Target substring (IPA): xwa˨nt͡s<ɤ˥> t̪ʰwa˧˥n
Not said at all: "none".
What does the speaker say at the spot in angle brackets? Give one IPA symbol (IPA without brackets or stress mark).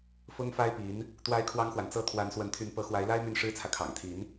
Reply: ɤ˥